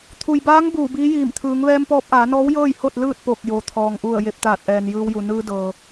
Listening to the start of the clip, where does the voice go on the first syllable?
low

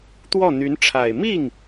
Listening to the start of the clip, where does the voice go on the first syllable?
falling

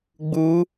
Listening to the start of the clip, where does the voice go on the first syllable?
rising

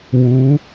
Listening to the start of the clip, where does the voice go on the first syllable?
rising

